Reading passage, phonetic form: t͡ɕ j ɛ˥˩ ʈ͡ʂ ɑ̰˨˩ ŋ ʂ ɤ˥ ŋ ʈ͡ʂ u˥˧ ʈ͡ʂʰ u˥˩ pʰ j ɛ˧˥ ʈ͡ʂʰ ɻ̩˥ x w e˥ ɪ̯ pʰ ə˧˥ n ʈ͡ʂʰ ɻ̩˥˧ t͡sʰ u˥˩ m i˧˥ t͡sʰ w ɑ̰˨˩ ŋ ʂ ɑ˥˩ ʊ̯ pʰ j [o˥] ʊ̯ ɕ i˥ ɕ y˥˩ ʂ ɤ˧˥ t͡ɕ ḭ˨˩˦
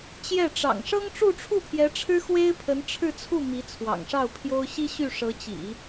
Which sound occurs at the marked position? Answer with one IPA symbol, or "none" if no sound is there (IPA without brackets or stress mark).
o˥